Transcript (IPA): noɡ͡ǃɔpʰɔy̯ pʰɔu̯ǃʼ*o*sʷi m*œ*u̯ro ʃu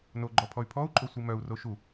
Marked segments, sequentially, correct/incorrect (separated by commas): correct, correct